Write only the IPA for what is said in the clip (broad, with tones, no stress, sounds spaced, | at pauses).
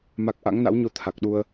m a˨˩ k̚ ʔ a̰˧˥ ŋ n a̰˧˥ w ɲ o˧ t̪ʰ a˨˩ k̚ ɗ u˧ ə̯